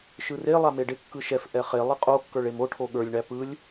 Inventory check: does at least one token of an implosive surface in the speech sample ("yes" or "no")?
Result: yes